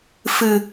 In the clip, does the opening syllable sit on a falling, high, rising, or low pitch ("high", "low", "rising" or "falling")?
low